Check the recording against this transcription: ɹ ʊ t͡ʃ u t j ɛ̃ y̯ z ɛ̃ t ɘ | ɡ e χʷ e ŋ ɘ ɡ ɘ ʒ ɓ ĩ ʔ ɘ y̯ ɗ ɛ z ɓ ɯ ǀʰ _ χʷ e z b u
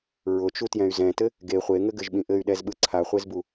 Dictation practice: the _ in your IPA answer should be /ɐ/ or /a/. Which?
a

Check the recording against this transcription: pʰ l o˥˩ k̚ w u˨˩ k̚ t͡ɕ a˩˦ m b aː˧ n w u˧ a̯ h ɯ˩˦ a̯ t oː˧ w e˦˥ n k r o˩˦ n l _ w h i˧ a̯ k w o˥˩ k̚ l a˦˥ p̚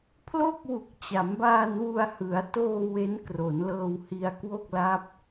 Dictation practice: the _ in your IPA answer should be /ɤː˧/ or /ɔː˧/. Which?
ɤː˧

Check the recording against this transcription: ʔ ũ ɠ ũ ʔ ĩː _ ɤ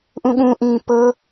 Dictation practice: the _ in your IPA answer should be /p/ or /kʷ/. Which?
p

